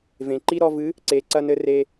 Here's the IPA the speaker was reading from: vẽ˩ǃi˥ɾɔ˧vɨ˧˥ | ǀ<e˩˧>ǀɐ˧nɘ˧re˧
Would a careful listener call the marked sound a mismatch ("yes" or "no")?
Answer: no